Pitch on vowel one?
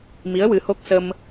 rising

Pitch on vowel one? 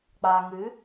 low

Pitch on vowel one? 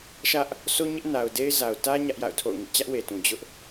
high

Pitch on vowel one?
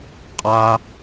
high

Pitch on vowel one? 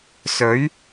rising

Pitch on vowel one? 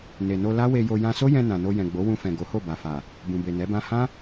low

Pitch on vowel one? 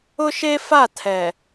high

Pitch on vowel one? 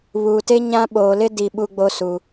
low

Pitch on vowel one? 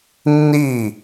falling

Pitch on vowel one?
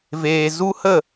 low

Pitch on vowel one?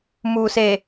low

